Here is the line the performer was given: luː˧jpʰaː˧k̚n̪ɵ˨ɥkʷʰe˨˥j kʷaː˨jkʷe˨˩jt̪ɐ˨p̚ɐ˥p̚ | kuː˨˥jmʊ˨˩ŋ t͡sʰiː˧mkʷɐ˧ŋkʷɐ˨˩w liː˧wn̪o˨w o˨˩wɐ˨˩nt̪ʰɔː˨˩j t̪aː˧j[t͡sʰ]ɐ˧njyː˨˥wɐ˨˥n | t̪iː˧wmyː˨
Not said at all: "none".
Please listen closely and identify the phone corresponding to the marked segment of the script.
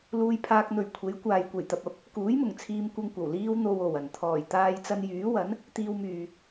t͡s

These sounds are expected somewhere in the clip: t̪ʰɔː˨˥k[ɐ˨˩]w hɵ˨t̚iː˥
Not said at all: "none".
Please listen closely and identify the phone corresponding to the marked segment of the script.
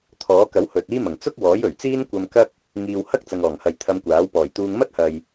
ɐ˨˥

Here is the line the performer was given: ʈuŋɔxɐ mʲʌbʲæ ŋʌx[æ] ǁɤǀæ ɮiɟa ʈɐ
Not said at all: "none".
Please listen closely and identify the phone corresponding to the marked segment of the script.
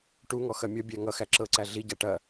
æ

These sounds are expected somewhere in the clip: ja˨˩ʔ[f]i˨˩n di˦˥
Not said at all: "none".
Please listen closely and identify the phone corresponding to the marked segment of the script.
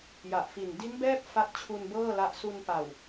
f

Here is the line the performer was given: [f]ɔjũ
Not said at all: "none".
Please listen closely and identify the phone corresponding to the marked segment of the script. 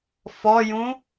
f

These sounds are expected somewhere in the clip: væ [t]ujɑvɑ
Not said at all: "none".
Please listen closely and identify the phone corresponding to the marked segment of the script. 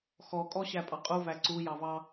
ǀ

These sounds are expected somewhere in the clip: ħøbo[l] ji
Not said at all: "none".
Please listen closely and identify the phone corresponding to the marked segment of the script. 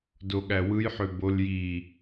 l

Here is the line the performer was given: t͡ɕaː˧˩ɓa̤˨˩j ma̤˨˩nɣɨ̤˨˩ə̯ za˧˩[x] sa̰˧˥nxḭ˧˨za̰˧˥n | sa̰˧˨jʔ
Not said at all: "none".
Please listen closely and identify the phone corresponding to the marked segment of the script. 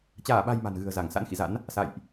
ŋ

